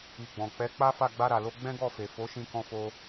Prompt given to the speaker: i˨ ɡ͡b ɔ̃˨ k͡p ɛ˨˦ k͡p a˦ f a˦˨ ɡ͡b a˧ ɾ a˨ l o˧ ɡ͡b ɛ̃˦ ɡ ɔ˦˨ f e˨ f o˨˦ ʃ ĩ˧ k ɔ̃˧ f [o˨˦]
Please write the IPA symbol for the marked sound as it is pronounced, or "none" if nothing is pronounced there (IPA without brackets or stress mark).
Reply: o˧